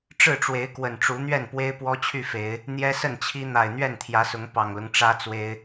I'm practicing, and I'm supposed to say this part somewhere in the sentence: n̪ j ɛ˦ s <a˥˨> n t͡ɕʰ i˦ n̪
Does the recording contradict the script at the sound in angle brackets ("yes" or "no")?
yes